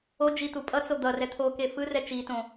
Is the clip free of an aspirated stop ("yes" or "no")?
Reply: no